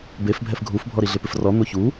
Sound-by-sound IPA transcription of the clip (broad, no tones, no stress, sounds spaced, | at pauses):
b e f bʱ ɛ f ɡʱ u f bʱ ɔ ɾ i ɮ ɪ p ɪ f r ɔ n̪ o ç u